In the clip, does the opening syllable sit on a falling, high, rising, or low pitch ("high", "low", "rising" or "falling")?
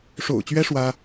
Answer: low